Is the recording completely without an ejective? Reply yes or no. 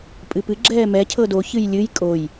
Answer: no